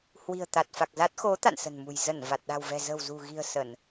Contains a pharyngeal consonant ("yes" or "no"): no